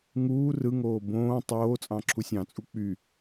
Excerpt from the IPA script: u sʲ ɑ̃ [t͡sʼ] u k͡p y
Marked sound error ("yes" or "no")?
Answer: no